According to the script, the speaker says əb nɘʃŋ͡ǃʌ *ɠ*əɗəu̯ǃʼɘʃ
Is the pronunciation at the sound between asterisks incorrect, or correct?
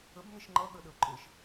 correct